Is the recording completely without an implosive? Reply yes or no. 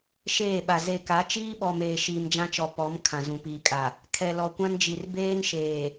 no